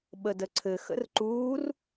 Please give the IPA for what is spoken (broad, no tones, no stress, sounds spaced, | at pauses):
ɓ ə d ə ǀʰ ɘ x ə̰ r ǃ uː r